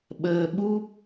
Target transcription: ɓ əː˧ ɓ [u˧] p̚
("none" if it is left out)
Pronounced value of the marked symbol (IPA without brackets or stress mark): u˦˥